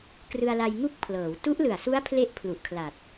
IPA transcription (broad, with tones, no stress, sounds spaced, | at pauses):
k r ɯ˧ a̯ l a˧ j ŋ u˥˩ k̚ pʰ l ɤː˩˦ w t u˦˥ ʔ l ɯ˨˩ a̯ s u˦˥ a̯ pʰ l e˥˩ ʔ pʰ l u˨˩ ʔ kʰ l a˨˩ t̚